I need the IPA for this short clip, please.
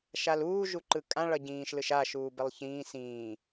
ʃ a l uː ʒ u ǃ ɯ kʼ ã ɭ ʌ ɟ ĩː ʃ l ɯ ʃ a ʃ uː b ɛ lˠ ç ĩː s ĩː

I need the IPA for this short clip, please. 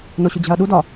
n o ɕ u d͡ʑ æ̤ ɐ̯ ɗ u d ɒ

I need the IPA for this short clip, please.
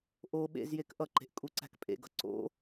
ʔ o ɓ ḛ z j e k ʔ ʌ ǃ e̤ ʔ kʼ u ǀ æ̤ k pʼ ḛ ɡ ʌ ǀ o̰

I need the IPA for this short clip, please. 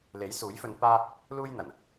l e˨˥ j s uː˨˥ j f ɵ˧ n p aː˥ | l uː˥ j n̪ ɐ˨˩ n

